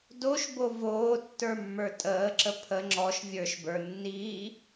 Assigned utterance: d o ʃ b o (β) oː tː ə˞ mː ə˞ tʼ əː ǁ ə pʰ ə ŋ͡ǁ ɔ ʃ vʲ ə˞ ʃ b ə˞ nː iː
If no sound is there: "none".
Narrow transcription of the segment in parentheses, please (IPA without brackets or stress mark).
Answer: v